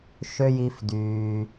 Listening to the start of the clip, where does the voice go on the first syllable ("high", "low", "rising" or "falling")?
high